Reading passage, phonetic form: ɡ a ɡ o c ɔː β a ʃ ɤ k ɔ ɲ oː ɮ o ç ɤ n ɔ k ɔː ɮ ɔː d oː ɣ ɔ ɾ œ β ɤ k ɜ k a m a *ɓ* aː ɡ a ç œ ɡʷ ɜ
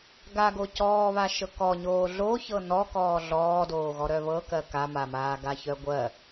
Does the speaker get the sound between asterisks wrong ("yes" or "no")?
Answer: yes